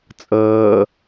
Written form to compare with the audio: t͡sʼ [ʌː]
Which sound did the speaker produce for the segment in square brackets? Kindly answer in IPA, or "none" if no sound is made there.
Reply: ʌː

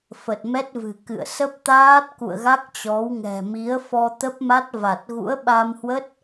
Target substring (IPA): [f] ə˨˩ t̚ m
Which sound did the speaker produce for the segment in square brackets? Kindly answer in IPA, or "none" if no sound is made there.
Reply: f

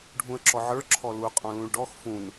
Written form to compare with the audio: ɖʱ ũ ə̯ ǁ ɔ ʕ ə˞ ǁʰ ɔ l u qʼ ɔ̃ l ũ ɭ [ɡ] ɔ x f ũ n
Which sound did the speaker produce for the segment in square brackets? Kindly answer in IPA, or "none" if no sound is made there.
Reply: ɖ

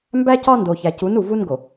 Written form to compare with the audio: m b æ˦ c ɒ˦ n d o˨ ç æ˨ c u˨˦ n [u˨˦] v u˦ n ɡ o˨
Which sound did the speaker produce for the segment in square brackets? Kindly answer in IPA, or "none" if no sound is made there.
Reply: u˨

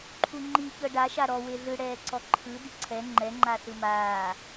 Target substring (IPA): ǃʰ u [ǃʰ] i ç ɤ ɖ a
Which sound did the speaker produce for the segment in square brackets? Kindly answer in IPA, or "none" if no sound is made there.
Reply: ŋ͡ǃ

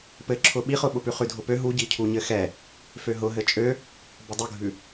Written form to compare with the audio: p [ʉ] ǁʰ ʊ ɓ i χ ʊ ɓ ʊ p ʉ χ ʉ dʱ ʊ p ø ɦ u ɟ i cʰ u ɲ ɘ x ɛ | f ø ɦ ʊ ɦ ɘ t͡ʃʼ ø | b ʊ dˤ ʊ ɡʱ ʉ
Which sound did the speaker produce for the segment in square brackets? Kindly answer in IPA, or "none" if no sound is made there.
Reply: ɘ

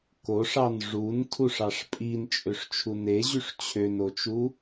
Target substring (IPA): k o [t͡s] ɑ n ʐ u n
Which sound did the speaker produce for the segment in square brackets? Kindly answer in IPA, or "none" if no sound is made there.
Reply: ʂ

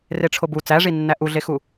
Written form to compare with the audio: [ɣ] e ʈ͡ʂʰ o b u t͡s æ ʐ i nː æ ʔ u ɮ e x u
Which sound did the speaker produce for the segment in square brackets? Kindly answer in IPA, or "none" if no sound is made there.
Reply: r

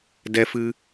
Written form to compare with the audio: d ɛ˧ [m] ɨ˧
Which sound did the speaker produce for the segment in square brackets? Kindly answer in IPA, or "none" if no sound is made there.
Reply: f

